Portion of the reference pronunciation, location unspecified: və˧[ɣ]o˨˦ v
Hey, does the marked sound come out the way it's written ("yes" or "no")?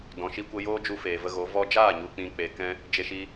yes